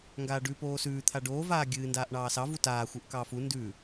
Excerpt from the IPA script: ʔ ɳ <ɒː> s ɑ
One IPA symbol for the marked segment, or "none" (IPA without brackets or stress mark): ɑː